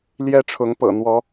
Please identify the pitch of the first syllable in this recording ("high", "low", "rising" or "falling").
high